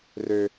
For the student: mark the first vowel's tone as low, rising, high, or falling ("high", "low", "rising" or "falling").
high